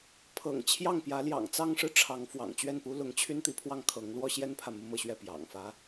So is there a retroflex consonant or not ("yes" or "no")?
yes